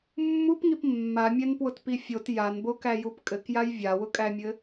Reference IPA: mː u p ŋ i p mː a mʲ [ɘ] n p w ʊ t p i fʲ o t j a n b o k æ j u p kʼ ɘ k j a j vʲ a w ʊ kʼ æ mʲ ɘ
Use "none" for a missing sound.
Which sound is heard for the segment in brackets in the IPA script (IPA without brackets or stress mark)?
ɛ